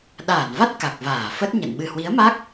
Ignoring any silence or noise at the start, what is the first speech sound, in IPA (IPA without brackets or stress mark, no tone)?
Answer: ɗ